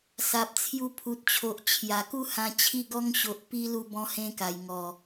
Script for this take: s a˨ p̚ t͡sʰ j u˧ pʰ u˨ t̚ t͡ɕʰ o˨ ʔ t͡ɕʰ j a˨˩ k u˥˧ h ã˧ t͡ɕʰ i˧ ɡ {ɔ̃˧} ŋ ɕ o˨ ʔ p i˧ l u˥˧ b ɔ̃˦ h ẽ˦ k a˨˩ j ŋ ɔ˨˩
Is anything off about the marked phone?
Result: yes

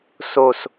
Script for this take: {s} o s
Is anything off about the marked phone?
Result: no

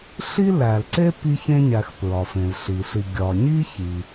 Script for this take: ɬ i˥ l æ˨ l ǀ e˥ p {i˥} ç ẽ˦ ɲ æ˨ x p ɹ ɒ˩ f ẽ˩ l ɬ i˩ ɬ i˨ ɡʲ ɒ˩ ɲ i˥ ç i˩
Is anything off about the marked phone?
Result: yes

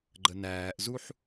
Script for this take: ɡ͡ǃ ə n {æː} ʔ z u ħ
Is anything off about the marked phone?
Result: no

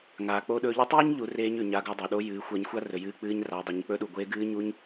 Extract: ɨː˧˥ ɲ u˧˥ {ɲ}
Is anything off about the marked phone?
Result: no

